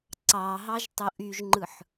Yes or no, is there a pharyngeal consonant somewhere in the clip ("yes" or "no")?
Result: yes